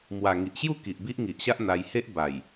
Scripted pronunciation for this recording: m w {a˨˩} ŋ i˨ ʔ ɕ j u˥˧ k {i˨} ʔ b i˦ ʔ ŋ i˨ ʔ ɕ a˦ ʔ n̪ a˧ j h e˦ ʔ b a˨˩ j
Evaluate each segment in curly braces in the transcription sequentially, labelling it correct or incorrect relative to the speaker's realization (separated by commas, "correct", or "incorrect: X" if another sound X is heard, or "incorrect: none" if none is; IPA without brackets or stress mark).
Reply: correct, correct